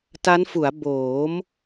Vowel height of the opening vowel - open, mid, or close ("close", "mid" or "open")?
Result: open